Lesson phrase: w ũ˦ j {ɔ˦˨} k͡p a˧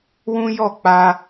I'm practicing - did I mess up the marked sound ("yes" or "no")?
no